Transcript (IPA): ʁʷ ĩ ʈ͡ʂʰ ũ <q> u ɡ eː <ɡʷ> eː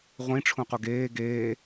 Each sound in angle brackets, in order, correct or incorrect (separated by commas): correct, incorrect